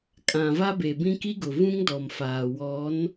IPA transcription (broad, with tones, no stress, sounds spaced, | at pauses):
kʼ ã˨ v a˦ b e˨ b ĩ˦ k i˦ ɡ ʊ˨ v ũ˦ ŋ d ɔ˨ m f aː˨ w ɔ˨˦ n